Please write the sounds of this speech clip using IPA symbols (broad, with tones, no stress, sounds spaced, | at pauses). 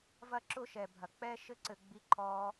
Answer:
v ɐ˧ ǁ ʊ˧ ʃ ɛ˨ bʱ ɐ˨ k͡p ɛ˦ ʃ ɘ˦ ǀ ɘ˧ ɡ͡b i˦ ǃʰ ɔː˦